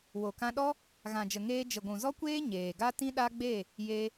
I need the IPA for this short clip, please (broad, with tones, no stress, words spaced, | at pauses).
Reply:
wo˨kã˧ɗɔ˦ | ɣã˨d͡ʒə˨ŋeː˧ d͡ʒə˨ɡʷũ˨zɔ˦kʷeː˦ ɲeː˨ɡa˦tĩ˦ ɗa˦ɡ͡be˦˨ | je˦